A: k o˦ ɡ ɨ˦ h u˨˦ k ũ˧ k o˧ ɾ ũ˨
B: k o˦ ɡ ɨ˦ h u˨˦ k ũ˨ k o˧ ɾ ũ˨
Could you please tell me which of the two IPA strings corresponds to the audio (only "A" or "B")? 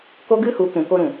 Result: B